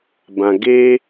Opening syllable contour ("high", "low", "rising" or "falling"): low